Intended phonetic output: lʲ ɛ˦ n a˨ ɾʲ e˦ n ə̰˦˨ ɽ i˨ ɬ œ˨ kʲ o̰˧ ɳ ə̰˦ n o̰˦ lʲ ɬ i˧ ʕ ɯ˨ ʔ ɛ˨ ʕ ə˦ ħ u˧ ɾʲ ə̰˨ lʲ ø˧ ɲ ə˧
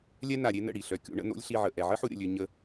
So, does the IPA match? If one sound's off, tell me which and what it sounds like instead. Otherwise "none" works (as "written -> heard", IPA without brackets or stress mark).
ɯ˨ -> ə˨